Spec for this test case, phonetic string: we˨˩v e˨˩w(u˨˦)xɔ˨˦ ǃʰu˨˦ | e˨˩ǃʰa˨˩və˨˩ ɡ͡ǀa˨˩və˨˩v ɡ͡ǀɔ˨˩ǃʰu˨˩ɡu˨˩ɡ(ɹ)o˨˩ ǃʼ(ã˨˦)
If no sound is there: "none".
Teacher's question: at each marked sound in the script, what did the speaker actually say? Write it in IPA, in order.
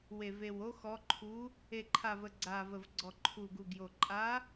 o˨˦, j, a˨˦

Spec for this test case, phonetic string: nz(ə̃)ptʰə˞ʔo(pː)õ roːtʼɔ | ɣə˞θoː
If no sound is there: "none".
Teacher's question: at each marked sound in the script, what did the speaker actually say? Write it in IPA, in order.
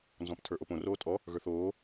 ɔ̃, p

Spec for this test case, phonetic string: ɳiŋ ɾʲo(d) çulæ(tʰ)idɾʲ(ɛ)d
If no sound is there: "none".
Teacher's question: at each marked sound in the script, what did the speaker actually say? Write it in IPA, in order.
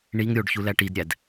ɖ, ʈ, æ

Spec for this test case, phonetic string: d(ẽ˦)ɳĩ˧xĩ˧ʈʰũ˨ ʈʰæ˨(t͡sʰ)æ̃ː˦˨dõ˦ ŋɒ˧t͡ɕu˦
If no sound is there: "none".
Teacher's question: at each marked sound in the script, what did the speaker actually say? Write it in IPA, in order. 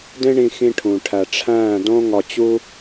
ẽ˦, ʈ͡ʂʰ

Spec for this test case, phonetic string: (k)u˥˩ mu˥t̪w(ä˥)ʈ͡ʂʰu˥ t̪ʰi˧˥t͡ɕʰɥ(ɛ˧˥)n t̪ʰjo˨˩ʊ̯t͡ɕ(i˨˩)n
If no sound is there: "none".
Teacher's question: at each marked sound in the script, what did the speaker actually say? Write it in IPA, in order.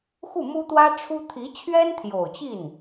x, ä˥, ɛ˥, i˥˩

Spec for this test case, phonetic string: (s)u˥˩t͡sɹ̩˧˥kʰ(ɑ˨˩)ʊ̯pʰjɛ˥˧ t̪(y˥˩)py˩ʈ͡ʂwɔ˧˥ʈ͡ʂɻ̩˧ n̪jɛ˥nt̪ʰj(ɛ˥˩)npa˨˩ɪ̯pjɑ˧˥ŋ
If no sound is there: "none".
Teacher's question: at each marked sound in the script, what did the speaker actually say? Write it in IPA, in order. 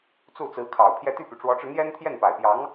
t͡s, ɑ˨˩, y˥˩, ɛ˥˩

